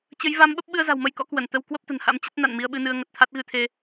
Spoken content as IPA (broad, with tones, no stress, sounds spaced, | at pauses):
t͡ɕ ə˨˦ j v a˨˦ m ɓ ə˦˥ p̚ ɓ ɨ˧ ə̯ z a̤˨˩ w m ə˧ j k ɔ̰˧˥ k w ə˧˩ n t̪ ə˧ w k w ə˦˥ p̚ t̪ ə̤˨˩ n h a̰˧˥ m t͡ɕ ə˦˥ t̚ n a̰˧˨ n m i˧ ə̯ ɓ ɨ˧ n ɨ˧ ə̯ ŋ ə˨˩ t̚ t̪ʰ a˦˥ t̚ ɣ ɨ˧ t̪ʰ e˧